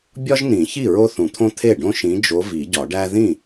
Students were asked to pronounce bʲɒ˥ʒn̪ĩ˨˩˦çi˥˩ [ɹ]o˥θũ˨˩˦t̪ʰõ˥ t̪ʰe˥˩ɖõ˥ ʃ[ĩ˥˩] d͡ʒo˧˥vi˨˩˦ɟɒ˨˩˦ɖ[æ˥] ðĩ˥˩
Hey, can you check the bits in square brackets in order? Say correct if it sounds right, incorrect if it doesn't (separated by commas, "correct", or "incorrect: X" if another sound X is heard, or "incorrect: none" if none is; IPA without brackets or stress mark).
correct, incorrect: ĩ˧˥, correct